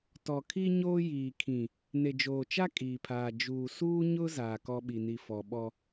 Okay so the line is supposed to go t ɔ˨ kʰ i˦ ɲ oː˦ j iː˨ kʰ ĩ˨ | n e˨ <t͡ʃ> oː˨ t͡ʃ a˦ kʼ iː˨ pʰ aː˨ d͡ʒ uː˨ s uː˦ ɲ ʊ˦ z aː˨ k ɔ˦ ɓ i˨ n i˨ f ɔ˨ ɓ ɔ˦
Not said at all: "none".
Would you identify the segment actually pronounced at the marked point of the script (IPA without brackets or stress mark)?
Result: d͡ʒ